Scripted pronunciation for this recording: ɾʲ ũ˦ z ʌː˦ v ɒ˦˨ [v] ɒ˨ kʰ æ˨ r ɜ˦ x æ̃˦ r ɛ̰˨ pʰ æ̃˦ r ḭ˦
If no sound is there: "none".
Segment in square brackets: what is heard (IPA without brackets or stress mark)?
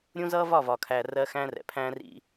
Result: v